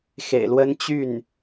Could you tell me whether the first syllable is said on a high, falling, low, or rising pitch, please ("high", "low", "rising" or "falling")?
low